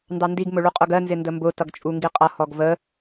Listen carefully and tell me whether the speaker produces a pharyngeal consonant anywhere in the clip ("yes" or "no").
no